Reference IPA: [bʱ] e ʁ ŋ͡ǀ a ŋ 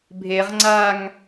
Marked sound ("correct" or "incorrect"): correct